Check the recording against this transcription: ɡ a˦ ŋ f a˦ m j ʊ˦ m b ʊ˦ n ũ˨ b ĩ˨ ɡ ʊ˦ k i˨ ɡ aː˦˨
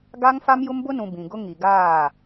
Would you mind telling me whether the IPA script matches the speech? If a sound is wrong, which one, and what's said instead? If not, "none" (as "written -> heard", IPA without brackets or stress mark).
k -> ŋ